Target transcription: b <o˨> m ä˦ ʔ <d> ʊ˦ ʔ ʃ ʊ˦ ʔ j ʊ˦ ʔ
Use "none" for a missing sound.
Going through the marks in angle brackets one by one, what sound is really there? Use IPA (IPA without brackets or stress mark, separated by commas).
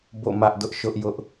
o̰˦˨, d